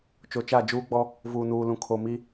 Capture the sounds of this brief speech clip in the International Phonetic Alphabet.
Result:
t͡ʃ o˨ t͡ʃ a˦˨ d͡ʒ uː˦ ɡ͡b ɔ˦ | v uː˨ n uː˨ l ũ˨ kʰ o˨ m i˦

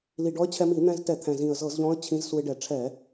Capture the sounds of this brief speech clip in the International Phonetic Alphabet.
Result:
l i˨˩ ɖ ɔ˧˥ ə̯ t͡ɕʰ ɛ˧ m i˧˩˧ n̪ ɛ̃˧ z t ɛ˧˩˧ t̪ʰ ɛ̃˨˩ z ĩ˨˩ ə̯ z ɤ˧˩˧ z ʎ ɔ̃˧˥ ə̯ t͡ɕʰ ĩ˧˥ z s u˧ ɪ̯ ɖ ɛ˧˩˧ ʈ͡ʂʰ ɛ˧˩˧

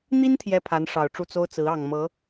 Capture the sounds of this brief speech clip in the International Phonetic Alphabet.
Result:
n̪ i˥ n t̪ʰ j ɛ˥ pʰ a˧˥ n ʂ ɑ˨˩ ʊ̯ ʈ͡ʂ u˥˩ t͡s o˥ ʊ̯ t͡s ɹ̩˧˥ ɑ˨˩ ŋ m ɤ˧˥

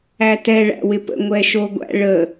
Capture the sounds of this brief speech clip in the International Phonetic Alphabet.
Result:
æ t ɛ ɭ æ̰ w ɪ p ə̰ ŋʷ ɛ ʃ o ɡʷ æ̰ ɭ ə

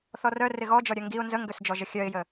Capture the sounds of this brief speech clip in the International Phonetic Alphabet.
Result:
θ ɔ r œ r ɪ ɣ ɔ d͡ʒ ɔ ɾʲ œ ŋ ɡ i ʊ̯ n z ə ŋ ɡ ø s d͡ʒ ɔ ʒ ə xʲ œ ɪ̯ j ə

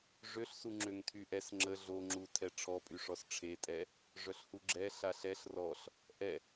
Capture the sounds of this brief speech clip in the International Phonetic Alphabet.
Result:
ʐ ø ɬ s u ŋ͡ǁ ø ŋ tʰ y ʔ ɛ s ŋ͡ǁ ə ɮ o ŋ͡ǁ u tʰ ɛ ʈ͡ʂʰ ɔ pʼ y ʂ ɔ s ʈ͡ʂʰ e tʼ ɛ | ʐ œ ɬ h u ɡ͡ǁ ɛ ɬ a ɬ ɛ ɬ r ɔ ɬ | ʔ ɛ

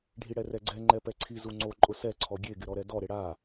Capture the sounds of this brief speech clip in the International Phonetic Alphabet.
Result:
ɖʱ i ɽ ɛ r ɛ ɡ͡ǀ ɛ ŋ͡ǃ ɛ p ɛ ǀʰ i z u ŋ͡ǀ o ǃʼ ʊ s ɛ ǀʰ ɔ ɡʲ e ɡ ɪ ɾ ɔ ɾ ɛ d ɔ ɾ ɪ ɽ a

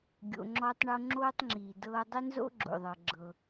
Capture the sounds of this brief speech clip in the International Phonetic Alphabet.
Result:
ɡʲ o̰˨ ŋ͡ǁ ɔː˦ tˤ ɳ o˦ ŋ͡ǁ oː˥ tˤ ŋ͡ǁ iː˩ d ɤː˦ dˤ ɪ˥ n z o̰˥ ɡ͡ǁ o̰˩ ðˤ ɤ˩ ɡ͡ǁ ɤ˩

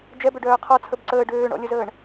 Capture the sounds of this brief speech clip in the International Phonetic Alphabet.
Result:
d͡ʒ ɛ b ø ɖ œː qʰ ɔ t͡sʰ ə b ǀ əː ɖ øː ɳ ɔ̰ lʲ ə z əː ɳ

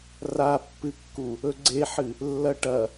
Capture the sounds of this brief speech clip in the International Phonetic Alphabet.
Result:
r a pː ɨ kː u | ɵ ɡ͡ǀ e ħ ɨ | lː ɐ ʈ ɐ

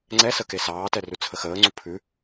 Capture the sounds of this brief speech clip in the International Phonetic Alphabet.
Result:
ŋ͡ǀ ɛ s ə k e s ɑː t ɛ r ʉ t͡sʰ ə x əː ŋ͡ǀ u pʰ ʉ

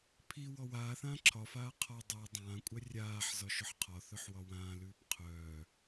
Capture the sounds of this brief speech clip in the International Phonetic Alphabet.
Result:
pʰ i w ɔ w aː θ ãː ǁʰ ɒ f aː qʰ ɒ dˤ u dˤ ãː kʷʼ œ rʲ aː ħ z ɒ ʃ ʊ ħ qʰ ɒ θ œ ħ w ɒ w ãː l ʉː p qʰ œː

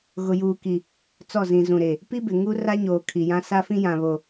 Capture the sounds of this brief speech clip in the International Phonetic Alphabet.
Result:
ɣ ʊ˨ j uː˨ k i˨ | t͡s ɔ˦˨ z ĩ˨ z ũ˨ ɾ e˨ | p i˦ b ɪ˨ ŋ u˦ r a˦ ɲ oː˨ kʰ i˨ j ã˦ s a˦ f ĩ˦ j ã˨ β o˨

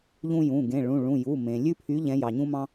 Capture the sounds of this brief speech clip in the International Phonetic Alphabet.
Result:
ʎ ũ˦ j ũ˩˧˩ ɡ ẽ˩˧˩ ɭ ũ˩˧˩ ɭ ũ˩˧˩ j u˩˧˩ m ẽ˩ lʲ ʉ˦ pʰ y˨˦ ʎ ɛ̃˨˦ j ɑ˩ ɲ ũ˦ m ɑ̃˦

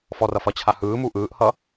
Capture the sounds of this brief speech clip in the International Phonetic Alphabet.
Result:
f ɔ r ʌ f ʌ t͡ɕʰ a h ɯː m u ʔ ɯː ʔ h ʌ

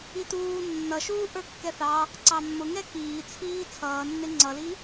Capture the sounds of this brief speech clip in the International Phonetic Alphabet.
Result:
i t uː nː ʌ ʃ uː ʔ ə˞ kː ɛ θ ɑ | ǀ ɑ mː ʊ ŋ ɛ k iː t͡sʰ iː t͡sʰ ʌː nː ɪ ŋ͡ǀ ʌ l i

